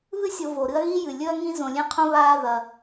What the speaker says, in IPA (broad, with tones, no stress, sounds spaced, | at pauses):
β ɨ˦ sʲ o˨ v o˩ ɾ ɨ˦ ɐ̯ ɣ i˥ j ɨ˩ lʲ ɵ˥ ɐ̯ ŋ ĩ˥ z õ˨ lʲ ẽ˥ qʰ õ˥ β aː˦ ð ɐ˨